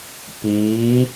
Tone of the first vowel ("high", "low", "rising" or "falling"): rising